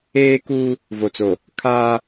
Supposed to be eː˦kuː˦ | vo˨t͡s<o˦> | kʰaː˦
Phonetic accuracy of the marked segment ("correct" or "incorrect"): incorrect